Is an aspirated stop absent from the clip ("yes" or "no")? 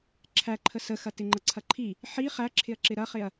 no